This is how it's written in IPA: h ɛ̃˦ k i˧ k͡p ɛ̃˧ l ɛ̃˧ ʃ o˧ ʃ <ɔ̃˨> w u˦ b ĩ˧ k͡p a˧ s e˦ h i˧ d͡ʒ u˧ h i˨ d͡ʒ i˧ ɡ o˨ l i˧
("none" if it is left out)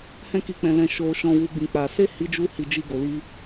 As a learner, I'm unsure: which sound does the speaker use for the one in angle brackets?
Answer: ɔ̃˧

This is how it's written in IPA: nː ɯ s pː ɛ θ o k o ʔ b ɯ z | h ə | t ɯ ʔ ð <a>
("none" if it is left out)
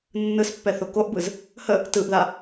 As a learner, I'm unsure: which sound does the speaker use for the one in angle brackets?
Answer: a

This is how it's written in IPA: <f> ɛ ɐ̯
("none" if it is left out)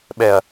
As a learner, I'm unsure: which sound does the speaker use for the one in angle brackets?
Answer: ɓ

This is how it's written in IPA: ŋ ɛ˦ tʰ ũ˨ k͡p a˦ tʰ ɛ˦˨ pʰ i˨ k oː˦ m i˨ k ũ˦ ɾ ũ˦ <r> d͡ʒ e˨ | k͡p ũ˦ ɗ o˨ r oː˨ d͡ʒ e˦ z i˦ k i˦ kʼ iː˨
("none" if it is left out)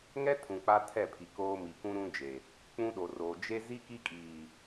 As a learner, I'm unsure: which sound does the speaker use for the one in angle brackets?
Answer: none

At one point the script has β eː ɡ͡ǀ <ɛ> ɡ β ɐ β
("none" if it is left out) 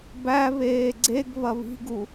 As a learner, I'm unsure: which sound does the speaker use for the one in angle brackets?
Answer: e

